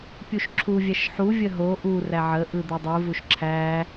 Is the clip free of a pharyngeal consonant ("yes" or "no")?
no